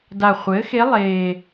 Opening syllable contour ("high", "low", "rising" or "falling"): low